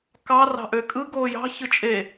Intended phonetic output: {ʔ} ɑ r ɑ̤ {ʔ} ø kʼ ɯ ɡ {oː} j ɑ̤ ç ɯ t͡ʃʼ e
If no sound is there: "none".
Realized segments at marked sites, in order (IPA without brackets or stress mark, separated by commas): k, ʔ, oː